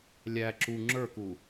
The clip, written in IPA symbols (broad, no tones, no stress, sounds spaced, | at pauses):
lʲ æ ǁ u ŋ͡ǁ ə˞ k u